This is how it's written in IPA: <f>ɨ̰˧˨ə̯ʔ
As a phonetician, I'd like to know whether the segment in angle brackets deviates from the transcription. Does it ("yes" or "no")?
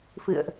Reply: no